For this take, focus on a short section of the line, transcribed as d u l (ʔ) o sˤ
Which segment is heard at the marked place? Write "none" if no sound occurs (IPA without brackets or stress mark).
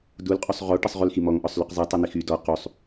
qʼ